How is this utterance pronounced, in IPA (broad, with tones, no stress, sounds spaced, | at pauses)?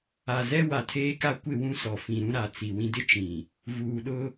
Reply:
a˨ z ɛ˦ w a˨ tʰ eː˦ k a˦ kʷ ɪ˦˨ w ũ˦ s ɔ˨ f ĩ˨ ɾ ũ˦ ɾ a˨ t͡s i˨ w ĩ˨ d ɪ˦ t͡ʃ ĩ˨ | v uː˨ ɗ ʊ˦